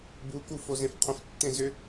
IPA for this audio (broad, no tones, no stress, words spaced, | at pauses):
buku fozẽfqʰə̃f tːẽzʏ